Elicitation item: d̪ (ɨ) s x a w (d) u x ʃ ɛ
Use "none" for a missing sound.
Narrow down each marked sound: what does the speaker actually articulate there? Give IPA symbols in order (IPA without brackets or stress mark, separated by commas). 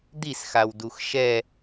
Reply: i, d